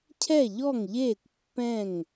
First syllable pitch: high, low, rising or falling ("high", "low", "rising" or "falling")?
falling